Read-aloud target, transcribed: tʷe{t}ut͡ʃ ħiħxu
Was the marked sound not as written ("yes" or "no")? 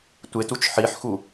no